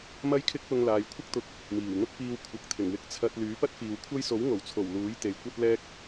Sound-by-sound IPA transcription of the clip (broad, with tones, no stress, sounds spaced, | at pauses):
m ɐ˥ j kʰ ɪ˥ k̚ p ʊ˧ ŋ l aː˨ j kʷʰ ɪ˥ k̚ t̪ ʊ˨ k̚ | m iː˨˩ w n̪ ʊ˥ k̚ p iː˧ w kʷʰ ɐ˨ k̚ t̪ʰ ɪ˨˩ ŋ w ɪ˧ k̚ t͡sʰ ɐ˧ t̚ l yː˨˥ p ɐ˥ t̚ f iː˨ w kʷʰ ɐ˥ j s o˨˥ w ŋ o˨˩ w t͡sʰ o˨˩ w l uː˨˥ j t̪ e˨ j kʷ ɐ˥ t̚ l ɛː˥ k̚